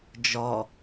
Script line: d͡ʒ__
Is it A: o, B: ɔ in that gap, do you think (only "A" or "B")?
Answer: B